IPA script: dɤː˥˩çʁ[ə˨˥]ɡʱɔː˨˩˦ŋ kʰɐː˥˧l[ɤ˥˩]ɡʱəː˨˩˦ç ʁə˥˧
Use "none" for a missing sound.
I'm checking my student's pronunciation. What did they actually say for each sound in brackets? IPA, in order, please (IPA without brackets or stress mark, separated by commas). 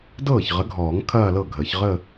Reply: ə˨˥, ɤ˥˩